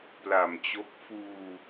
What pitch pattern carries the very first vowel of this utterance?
low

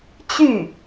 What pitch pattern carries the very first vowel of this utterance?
falling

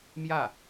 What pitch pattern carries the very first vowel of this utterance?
falling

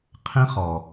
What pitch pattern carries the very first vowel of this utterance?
high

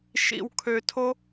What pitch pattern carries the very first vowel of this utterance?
low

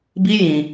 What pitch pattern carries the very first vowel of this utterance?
high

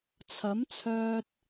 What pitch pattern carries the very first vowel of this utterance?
rising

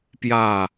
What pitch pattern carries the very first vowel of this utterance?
falling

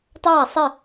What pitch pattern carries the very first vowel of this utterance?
falling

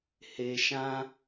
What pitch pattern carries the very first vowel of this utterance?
low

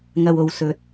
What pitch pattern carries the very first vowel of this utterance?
low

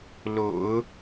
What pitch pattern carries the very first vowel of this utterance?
low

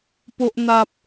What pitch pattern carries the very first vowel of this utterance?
high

